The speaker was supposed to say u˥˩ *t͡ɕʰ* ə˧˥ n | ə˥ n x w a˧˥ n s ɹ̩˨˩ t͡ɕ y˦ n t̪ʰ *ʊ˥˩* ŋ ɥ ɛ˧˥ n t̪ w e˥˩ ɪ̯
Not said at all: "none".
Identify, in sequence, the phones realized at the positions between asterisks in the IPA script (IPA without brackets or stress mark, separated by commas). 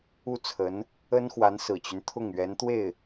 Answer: t͡sʰ, ʊ˥˩